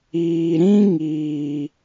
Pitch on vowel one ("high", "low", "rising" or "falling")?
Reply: low